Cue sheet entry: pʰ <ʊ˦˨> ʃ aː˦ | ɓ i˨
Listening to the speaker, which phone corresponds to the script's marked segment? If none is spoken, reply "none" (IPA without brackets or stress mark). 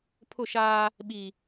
ʊ˦˨